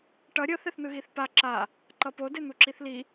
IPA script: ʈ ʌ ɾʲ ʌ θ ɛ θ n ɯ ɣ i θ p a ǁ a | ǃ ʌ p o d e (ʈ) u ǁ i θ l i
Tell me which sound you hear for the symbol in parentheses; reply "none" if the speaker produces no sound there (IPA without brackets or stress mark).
n̪